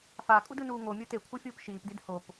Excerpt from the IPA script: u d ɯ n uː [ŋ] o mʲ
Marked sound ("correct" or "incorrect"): correct